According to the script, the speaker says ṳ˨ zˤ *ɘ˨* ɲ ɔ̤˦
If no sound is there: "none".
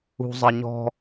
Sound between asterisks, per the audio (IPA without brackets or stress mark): ɘ˨